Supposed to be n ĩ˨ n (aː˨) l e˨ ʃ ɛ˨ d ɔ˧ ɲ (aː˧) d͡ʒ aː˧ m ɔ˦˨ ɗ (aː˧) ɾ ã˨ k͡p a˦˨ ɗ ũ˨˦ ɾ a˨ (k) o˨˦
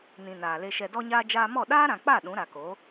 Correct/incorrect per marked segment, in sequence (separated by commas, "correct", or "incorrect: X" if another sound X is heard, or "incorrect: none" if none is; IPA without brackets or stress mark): correct, correct, incorrect: aː˦, correct